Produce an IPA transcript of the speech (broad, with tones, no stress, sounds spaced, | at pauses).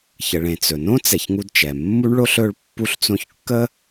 ç ə˨ ɭ ẽ˨ t͡s ɵ˩ n õ˥ t͡s ɛ˨ ç ŋ u˦ d t͡ʃ ɛ˩ mː u˥ ɳ ɭ o˥ ɬ ɵ˦ ɭ pː u˦ ɬ t͡s õ˦ ç kː ə˥